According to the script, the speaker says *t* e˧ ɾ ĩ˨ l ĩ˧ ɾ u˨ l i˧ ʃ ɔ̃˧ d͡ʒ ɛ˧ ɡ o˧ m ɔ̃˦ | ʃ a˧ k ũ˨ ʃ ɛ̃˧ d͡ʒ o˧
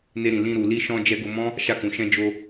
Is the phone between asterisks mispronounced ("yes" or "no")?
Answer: yes